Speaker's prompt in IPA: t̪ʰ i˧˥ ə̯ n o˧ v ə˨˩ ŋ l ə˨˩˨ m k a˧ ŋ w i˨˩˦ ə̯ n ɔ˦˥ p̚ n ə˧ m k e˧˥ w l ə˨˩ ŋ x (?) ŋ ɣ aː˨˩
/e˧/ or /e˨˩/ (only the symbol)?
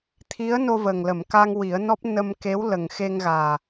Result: e˧